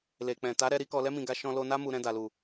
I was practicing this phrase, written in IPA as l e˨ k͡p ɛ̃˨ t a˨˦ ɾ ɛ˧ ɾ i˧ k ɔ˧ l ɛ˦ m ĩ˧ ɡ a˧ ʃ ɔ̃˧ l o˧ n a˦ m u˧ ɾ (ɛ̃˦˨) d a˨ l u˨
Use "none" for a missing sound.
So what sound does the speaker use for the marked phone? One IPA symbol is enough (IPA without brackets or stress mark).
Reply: ɛ̃˧